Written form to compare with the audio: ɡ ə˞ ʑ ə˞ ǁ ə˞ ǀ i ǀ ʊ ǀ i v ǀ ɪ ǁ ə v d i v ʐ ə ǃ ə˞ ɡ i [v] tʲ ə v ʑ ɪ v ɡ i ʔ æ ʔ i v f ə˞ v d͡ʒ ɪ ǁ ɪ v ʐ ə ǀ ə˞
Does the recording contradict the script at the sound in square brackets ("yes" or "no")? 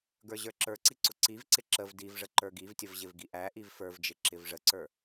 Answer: no